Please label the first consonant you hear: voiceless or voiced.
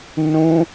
voiced